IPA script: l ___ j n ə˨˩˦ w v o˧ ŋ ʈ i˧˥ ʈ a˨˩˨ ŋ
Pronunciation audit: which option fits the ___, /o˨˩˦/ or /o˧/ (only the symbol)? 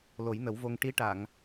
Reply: o˨˩˦